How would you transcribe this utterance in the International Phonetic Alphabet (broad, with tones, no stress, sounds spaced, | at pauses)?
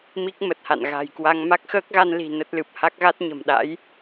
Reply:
m i˦˥ k̚ m ə˨˩ t̚ h a̰˧˨ n ɣ a̤˨˩ j k w a˧ ŋ m a˦˥ k̚ x əː˦˥ k̚ ɣ a˧ n l i̤˨˩ n ə˦˥ t̚ l ɨ˨˩ p̚ h a˦˥ k̚ ɣ a˦˥ t̚ ɲ ə̤˨˩ m ɗ a̰˧˥ j